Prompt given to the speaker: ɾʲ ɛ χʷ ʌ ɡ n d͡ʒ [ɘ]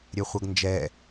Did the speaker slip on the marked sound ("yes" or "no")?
yes